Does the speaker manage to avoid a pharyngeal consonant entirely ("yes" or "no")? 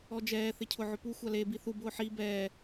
no